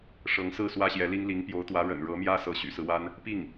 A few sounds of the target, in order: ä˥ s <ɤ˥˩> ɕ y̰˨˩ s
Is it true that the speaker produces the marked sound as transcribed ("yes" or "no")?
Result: no